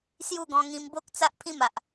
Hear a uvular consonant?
no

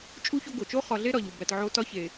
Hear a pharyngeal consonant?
yes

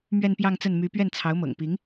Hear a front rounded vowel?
yes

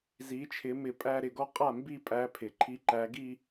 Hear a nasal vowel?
no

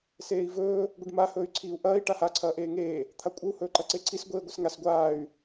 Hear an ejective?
yes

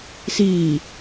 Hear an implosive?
no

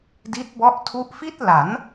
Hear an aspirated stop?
yes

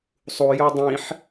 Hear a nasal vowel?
yes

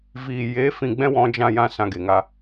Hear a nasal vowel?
yes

